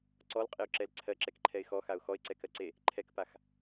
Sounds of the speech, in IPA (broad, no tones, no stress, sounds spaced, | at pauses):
ǀ ɔ l qʼ e ʊ̯ ǁ ɛ l ǀʰ ɜ ǁ ɛ k ǃʰ ɛ ɪ̯ x ɔ x a ʊ̯ x ɔ ɪ̯ ǀ ɛ k ɜ ǀ e | ǃʰ ɛ k p a x